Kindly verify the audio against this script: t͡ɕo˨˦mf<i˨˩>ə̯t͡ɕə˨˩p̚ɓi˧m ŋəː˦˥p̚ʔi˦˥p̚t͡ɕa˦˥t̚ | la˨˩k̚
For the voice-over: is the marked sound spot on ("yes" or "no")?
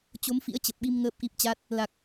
no